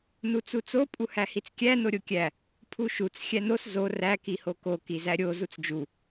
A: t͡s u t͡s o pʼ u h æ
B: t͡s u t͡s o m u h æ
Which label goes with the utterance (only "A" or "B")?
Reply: A